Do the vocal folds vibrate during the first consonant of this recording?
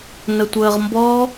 yes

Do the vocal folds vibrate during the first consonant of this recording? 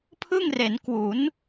no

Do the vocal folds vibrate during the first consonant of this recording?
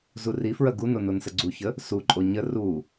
yes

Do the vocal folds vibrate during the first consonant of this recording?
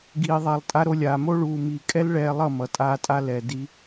yes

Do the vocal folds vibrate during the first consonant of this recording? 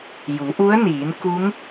yes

